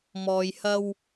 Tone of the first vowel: low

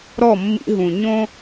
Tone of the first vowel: falling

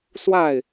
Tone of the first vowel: falling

